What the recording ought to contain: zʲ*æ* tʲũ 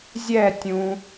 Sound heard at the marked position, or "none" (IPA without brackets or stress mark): ɛ